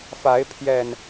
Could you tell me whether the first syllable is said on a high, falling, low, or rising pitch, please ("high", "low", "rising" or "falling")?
rising